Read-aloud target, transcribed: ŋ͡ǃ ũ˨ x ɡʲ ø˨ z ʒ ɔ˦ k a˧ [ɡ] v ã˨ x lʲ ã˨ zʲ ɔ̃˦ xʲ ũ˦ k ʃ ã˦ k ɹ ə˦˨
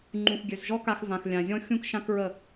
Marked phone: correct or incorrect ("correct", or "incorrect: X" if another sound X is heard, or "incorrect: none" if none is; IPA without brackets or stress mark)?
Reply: incorrect: x